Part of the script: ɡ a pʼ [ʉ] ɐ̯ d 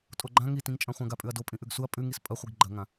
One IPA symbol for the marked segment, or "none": ʉ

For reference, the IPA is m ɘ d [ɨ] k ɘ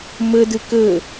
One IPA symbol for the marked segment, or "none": ɨ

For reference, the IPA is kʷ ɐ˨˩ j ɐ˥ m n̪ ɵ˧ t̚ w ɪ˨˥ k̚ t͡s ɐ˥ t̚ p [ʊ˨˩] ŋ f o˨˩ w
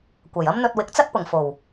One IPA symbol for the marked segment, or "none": ʊ˨˩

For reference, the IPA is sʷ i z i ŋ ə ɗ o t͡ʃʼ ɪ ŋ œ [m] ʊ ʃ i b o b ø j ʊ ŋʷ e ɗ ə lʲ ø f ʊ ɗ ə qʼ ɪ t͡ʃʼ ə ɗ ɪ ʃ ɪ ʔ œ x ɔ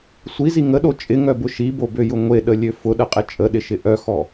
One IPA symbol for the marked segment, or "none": b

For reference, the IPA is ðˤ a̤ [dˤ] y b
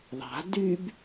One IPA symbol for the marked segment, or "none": d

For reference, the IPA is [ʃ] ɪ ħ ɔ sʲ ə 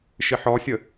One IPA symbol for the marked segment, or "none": ʃ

